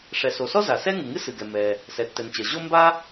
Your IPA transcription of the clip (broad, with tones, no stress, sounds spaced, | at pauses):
ʂ ɛ˩ s o˩ s ɔ˥ z a˩ s ɛ˥ ŋ ɨ˩ ŋ ɨ˥ s ɨ˩ ɡ ɛ˩ m ɛ˩ | s ɛ˩ tː ɛ˩ n t͡ɕ ɜ˩ ʑ o˥ m b a˥